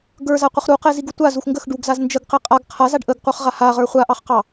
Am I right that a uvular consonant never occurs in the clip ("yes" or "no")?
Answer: no